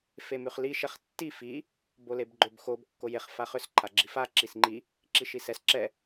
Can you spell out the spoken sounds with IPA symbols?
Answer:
femʉχli ʃɛχtːi fi | bolebɡ͡ǃʏb xob kːojeχ faχʏs ǃʰaɡ͡ǁifa ǁisŋ͡ǃi | ǁiʃisɛs ǁɛ

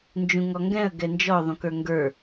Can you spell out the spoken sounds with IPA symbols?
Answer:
nd͡ʒũŋɔŋɡɛ̃ə̯ ɡɛnd͡ʒɔ ðˤũkə˞ŋɡə˞

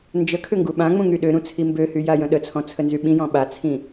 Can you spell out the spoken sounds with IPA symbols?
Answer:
nd͡ʒəkʰʏ ŋɡuɓãŋ͡mũ ŋyɗøɾũ t͡sʰimbøhy jajə̃ɗət͡sʰɔ̃ t͡sʰənzyɓĩjɔ̃ ɓat͡sʰĩ

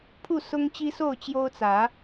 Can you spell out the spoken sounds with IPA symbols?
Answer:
pʰu˥˨sʊ˦ŋt͡ɕi˦so˥˨ʊ̯ t͡ɕjo˦ʊ̯ t͡sä˨˦

